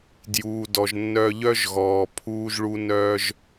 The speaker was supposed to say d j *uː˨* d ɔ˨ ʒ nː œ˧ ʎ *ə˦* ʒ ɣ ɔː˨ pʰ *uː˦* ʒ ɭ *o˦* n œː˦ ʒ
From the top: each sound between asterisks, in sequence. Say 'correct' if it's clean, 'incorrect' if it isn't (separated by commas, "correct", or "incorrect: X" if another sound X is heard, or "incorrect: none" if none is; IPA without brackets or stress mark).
correct, incorrect: œ˦, correct, incorrect: u˦